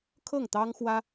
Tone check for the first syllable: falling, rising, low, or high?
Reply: falling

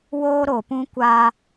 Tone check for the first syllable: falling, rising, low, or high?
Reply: high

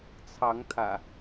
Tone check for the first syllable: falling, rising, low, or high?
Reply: rising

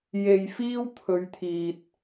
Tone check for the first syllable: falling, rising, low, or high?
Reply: low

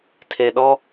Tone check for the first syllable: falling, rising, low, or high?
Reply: low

